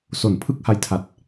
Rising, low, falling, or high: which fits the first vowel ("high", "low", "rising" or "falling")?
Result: low